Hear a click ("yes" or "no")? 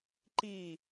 yes